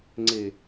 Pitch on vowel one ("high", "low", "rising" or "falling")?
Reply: low